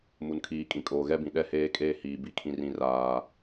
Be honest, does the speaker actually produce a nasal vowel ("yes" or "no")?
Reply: yes